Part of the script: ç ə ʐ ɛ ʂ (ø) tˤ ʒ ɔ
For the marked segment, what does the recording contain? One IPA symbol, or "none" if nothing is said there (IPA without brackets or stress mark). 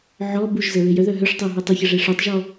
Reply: œ